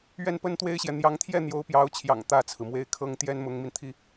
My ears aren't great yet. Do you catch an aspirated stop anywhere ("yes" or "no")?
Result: yes